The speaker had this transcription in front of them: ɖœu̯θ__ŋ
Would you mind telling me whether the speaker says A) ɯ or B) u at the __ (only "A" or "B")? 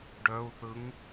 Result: A